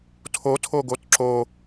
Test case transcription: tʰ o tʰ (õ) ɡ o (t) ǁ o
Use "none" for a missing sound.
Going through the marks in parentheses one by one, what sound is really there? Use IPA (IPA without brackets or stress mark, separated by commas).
o, t